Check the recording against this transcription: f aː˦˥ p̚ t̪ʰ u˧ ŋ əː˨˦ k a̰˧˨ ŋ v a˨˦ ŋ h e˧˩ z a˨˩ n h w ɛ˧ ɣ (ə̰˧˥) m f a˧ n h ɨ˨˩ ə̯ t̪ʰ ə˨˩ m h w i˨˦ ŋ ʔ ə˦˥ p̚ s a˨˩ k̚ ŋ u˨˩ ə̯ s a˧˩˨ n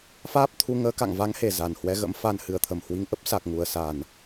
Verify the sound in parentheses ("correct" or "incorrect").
correct